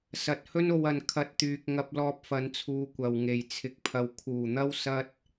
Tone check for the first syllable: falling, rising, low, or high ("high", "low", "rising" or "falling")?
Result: low